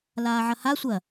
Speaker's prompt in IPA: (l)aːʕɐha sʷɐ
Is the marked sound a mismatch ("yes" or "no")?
no